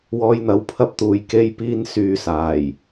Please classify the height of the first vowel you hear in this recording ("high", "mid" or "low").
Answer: mid